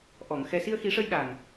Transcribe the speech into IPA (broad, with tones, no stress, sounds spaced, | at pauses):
ʔ ɔ˨˩˨ ŋ x ɛ˨˩ s i˧ ə̯ x i˨˩˦ ʂ ə˧ j ɗ a˨˩ ŋ